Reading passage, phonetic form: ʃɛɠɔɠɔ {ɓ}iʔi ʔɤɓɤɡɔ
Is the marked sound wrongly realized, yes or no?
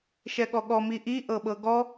yes